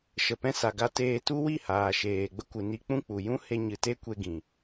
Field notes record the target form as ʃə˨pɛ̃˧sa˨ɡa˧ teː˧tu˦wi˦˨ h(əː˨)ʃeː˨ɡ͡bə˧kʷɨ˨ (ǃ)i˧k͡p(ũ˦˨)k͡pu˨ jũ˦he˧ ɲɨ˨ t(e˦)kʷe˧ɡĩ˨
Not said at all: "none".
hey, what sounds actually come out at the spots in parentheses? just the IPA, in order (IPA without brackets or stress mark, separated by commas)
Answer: aː˨, n, ũ˦˨, e˦